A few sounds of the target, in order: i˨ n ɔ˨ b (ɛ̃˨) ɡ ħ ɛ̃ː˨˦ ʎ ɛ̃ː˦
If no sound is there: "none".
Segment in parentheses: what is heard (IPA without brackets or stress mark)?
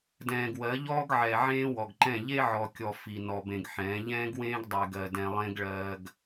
ẽ˨